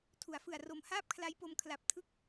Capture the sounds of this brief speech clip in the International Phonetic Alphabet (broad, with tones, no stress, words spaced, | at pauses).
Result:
tʰu˩˦a̯fɯ˨˩a̯ro˨˩m haː˥˩p̚kʰla˦˥jpo˧m kʰla˨˩p̚tʰɯ˦˥k̚